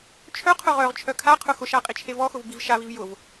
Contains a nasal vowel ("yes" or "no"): no